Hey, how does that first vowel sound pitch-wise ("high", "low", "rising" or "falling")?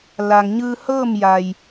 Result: low